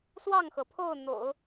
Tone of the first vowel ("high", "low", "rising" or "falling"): falling